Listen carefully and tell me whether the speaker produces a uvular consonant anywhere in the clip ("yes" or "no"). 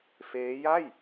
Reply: no